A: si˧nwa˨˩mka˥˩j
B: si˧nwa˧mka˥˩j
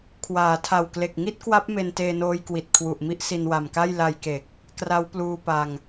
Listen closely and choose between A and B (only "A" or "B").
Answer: A